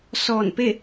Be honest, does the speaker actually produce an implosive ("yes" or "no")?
no